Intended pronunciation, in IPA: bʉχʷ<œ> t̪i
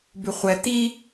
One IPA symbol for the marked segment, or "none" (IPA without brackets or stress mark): ɛ